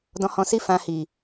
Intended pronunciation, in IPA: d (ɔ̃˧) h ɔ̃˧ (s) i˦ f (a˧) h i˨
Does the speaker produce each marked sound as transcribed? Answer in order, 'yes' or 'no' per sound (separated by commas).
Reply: yes, yes, no